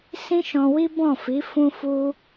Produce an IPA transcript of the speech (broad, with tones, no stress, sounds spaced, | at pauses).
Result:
s ĩ˦ ʃ ɔ̃˧ w i˦ b ɔ̃˦˨ f i˨˦ f ũ˧ f u˧